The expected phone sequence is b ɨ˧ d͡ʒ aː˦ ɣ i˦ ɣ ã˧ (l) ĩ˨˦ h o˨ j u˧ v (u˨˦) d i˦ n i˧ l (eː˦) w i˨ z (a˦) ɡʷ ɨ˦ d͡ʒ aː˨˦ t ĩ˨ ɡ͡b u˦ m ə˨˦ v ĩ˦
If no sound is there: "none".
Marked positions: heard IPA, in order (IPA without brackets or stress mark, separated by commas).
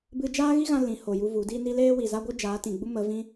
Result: l, u˨˦, eː˦, a˦